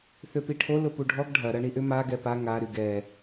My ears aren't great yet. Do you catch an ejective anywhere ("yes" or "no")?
no